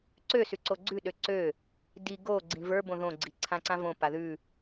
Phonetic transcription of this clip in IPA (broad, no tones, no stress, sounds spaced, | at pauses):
ǀ ø s ʉ ǀ o ɡ͡ǀ ʉ ɗ ø ǀ ø | d i ɡ o ɡ͡ǀ ĩ v ə˞ b õ ð õ ɡ͡ǀ i ǀʰ ã ǀ ã v õ p a ð ʉ